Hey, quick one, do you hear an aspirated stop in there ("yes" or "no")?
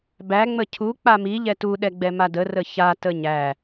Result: yes